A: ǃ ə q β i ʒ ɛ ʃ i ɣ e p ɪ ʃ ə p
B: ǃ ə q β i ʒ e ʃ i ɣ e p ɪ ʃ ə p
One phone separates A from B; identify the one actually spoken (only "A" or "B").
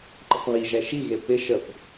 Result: A